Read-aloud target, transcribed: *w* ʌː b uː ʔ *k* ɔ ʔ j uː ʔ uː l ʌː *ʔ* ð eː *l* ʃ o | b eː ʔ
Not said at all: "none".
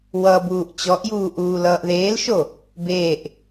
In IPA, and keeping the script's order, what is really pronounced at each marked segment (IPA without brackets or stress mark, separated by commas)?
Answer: w, t͡ɕ, ʔ, l